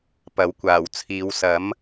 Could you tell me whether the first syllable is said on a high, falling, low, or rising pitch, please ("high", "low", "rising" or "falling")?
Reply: rising